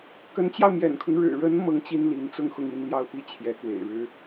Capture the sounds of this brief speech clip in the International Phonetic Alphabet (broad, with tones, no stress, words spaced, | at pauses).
kə˧˥nt͡ɕjɑ˧ʊ̯mjɛ̰˨˩nkʰʊ˦ŋ ɻɻ̩˨˩ɻə˧˥n mɤ˥ŋt͡ɕi˥nli˧˥n t͡sʊ˥˧ŋxʊ˥˧ŋi˥˧nljɑ˥˧ʊ̯ pi˥˩ t͡ɕʰjɛ˧˥kwḛ˨˩ɪ̯ɻɻ̩˥